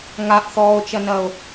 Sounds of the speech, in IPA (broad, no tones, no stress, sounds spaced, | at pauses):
ŋ a ʔ θ ɔː o̯ t͡ʃ ɐ n ɐ o̯